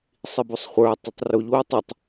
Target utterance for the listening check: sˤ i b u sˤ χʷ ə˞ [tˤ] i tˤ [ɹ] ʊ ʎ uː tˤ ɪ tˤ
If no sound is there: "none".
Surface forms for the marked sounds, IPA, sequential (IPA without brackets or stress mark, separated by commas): tˤ, r